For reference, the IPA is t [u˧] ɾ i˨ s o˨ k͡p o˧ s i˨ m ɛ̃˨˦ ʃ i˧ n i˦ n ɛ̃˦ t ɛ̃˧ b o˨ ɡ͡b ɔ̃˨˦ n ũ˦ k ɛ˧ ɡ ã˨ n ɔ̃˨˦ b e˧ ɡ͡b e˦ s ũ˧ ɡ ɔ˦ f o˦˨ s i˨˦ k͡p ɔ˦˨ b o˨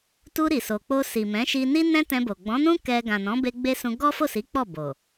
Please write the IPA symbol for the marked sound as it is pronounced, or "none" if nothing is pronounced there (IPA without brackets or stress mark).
u˧